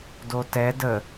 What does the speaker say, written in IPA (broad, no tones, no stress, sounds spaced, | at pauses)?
d o t ɛ d ə